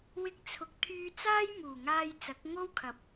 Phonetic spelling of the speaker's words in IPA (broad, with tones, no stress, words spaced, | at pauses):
wɪ˥k̚t͡sʰʊ˧k̚ t̪ʰyː˧t͡saː˥j muː˨˩ŋaː˧j t͡sɐ˨˥k̚ŋo˥wkʰɐ˨˥p̚